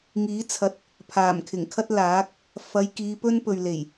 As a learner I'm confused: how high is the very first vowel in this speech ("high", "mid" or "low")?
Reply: high